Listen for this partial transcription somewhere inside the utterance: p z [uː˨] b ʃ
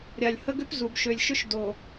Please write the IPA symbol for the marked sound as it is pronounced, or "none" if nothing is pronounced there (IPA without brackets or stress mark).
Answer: u˨